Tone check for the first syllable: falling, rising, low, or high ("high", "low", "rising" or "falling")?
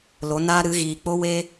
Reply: rising